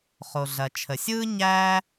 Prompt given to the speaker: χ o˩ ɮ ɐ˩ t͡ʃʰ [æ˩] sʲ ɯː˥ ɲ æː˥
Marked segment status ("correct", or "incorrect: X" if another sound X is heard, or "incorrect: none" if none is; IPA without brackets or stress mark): incorrect: ə˩